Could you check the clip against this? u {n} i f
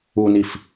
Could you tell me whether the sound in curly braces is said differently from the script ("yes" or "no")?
no